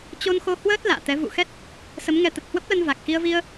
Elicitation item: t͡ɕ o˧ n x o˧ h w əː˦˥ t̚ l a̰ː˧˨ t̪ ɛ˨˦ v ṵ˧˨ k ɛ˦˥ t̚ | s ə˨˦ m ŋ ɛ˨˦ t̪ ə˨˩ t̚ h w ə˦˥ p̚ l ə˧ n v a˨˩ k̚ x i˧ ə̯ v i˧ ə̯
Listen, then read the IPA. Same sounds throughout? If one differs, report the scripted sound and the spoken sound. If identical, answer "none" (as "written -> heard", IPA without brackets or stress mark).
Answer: k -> x